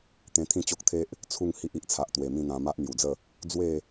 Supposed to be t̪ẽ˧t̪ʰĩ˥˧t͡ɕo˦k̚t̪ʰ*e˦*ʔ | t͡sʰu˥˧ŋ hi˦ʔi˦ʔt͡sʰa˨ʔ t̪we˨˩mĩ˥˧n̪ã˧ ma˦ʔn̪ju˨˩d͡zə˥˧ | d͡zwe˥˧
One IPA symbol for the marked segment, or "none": e˦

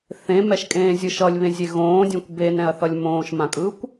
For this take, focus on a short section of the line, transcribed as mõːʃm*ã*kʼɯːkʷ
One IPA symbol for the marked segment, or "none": ã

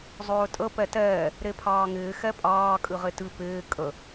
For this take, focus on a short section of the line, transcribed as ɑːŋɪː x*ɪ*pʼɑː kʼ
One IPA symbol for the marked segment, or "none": ɛ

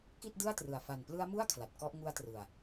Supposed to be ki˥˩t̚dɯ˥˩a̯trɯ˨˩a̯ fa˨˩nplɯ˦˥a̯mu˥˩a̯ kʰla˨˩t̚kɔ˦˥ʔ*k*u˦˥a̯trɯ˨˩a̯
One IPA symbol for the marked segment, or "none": ŋ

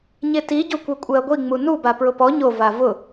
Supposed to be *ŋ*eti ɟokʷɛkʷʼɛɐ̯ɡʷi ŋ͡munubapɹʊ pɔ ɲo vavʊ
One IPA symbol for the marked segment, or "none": ɲ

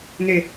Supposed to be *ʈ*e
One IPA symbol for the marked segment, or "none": n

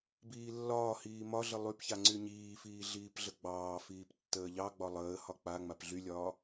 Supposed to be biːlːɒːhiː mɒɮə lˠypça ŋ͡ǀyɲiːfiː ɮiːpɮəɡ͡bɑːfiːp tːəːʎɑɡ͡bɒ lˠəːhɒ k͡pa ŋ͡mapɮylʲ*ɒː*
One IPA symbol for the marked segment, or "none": ɒː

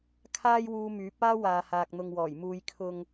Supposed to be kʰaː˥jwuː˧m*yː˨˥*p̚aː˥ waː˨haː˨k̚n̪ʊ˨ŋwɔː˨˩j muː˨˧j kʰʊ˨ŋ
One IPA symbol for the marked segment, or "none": yː˨˥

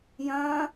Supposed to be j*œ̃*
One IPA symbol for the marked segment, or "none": œ̃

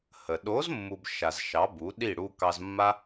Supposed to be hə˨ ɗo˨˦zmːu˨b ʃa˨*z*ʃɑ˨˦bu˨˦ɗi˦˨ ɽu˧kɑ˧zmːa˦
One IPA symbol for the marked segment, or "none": z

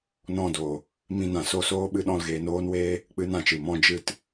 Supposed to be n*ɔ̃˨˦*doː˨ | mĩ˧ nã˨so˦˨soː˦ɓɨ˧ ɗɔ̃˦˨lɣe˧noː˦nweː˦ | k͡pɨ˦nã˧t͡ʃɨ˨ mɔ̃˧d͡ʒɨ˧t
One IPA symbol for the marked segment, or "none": ɔ̃˦˨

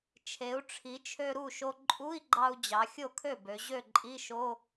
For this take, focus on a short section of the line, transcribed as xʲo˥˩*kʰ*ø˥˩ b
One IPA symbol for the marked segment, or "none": kʰ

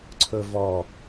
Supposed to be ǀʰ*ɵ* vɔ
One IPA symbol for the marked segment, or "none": ɵ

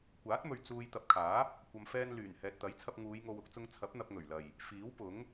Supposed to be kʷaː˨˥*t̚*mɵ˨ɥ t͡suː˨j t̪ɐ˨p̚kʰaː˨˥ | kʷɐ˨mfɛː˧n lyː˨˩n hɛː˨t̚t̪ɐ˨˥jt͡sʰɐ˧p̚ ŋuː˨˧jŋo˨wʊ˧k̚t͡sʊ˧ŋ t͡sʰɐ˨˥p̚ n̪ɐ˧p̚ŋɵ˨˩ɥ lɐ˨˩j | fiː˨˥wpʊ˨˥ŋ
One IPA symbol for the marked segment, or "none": t̚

